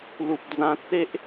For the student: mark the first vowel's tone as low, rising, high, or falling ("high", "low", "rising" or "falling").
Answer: low